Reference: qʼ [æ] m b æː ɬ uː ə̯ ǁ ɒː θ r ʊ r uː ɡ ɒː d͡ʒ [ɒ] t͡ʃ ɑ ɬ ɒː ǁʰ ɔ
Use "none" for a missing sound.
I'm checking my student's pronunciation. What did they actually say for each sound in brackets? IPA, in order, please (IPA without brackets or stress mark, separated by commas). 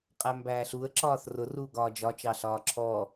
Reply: æ, ɒ